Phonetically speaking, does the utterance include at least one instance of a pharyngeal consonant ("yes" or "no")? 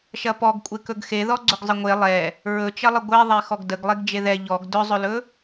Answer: no